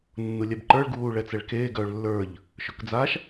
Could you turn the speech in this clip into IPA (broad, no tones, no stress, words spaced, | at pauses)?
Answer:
nːulʲɛbǃə˞ɭ ɡuːɭɛt͡sɛɭkeː ɡœːɭlːə˞ʎ | ʃɵkd͡zaʃ